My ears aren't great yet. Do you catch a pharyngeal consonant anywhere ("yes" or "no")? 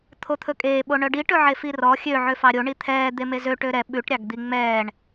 yes